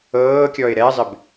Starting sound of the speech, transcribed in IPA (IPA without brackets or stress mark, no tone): ɤː